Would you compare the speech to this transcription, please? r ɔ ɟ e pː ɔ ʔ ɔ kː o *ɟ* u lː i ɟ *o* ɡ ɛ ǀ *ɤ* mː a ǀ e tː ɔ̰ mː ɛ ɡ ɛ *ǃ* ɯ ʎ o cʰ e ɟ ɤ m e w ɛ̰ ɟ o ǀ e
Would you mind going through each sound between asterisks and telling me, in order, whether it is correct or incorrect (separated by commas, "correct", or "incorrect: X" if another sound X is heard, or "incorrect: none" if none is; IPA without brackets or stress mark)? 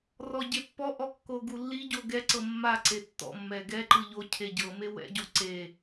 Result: incorrect: ɡ, correct, correct, correct